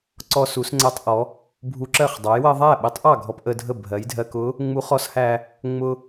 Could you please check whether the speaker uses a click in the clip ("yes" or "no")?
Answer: yes